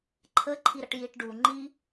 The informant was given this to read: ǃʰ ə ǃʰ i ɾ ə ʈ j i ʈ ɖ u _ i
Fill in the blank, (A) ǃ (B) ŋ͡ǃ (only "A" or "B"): B